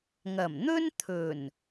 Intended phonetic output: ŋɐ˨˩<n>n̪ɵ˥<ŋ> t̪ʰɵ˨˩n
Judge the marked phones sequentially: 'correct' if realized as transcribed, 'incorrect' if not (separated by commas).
incorrect, incorrect